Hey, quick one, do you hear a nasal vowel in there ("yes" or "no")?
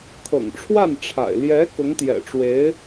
no